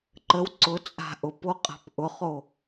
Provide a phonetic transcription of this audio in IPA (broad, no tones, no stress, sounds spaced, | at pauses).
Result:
ǃ ə w ǀ ʊ t͡sʼ a̤ ʔ ʊ p o qʼ a̤ p ʔ ʊ χ o